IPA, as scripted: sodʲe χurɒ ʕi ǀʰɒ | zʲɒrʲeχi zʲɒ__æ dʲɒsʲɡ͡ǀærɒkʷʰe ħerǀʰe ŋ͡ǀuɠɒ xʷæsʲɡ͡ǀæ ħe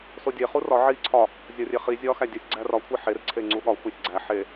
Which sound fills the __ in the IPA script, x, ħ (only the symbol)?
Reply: x